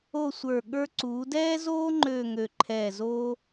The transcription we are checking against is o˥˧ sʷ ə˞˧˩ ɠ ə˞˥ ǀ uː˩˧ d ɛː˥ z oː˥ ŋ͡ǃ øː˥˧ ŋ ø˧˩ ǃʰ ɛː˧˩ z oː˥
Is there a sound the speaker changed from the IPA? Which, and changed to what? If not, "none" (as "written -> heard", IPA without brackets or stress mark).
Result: none